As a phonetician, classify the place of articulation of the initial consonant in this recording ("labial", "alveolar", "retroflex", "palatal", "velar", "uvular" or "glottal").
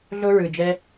alveolar